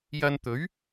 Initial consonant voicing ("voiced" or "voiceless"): voiced